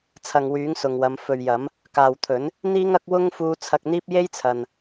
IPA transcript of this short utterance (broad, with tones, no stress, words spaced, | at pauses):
t͡sʰɐ˨ŋwyː˨˥ŋsʊ˨ŋwɐ˨˧m fɵ˨ɥjɐ˨˥m | kaː˨wt̪ʰɵ˨˥n | n̪iː˧ŋɐ˨˥k̚ wʊ˥ŋfuː˧ t͡sʰɐ˧k̚n̪iː˥p̚ je˥jt͡sʰɐ˨n